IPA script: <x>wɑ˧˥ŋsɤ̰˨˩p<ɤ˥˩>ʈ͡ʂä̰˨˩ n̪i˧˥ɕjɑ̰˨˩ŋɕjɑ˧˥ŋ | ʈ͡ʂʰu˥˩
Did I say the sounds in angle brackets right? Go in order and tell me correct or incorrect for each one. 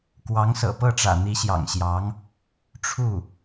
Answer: incorrect: k, correct

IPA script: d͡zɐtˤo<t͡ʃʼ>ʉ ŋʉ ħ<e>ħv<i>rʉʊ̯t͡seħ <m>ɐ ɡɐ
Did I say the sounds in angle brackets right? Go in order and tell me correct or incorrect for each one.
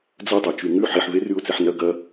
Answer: incorrect: t͡ʃ, incorrect: i, incorrect: e, incorrect: n

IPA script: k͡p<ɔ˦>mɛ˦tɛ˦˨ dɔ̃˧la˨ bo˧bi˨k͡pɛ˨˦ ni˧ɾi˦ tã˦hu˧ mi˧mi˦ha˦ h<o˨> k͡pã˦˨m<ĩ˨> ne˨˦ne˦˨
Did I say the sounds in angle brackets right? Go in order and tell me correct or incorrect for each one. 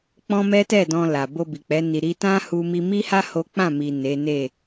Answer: incorrect: ɔ̃˦, incorrect: o˦, incorrect: i˨

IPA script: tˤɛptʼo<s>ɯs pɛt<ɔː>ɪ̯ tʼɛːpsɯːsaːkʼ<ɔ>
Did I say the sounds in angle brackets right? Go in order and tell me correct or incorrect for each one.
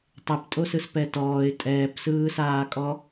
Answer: correct, correct, correct

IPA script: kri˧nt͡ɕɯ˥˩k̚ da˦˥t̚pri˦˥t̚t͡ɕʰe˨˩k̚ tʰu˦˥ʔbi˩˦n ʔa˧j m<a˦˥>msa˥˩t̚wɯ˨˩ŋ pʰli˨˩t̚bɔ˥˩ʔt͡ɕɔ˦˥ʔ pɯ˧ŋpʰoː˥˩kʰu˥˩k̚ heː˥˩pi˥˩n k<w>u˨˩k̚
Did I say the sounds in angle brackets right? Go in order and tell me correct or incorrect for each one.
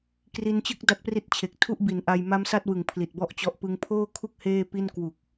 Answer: correct, correct

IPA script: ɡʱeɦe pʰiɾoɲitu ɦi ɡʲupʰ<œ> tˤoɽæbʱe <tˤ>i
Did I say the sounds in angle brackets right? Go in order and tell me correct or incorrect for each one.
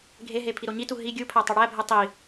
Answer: incorrect: æ, correct

